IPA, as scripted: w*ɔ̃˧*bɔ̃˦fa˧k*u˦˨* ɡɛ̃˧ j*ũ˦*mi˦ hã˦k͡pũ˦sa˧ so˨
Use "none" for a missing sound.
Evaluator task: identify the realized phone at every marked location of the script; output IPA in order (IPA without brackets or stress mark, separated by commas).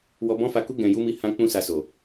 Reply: ɔ˧, u˦, u˦